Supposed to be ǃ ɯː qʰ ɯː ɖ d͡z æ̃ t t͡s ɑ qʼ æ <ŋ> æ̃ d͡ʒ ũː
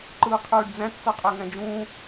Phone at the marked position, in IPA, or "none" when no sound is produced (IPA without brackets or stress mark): ŋ